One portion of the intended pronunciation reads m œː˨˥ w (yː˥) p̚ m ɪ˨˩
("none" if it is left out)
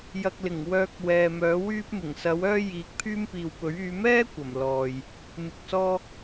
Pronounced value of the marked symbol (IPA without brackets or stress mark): yː˥